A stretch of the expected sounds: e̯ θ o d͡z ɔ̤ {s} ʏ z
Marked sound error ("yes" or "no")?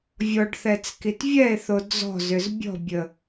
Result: yes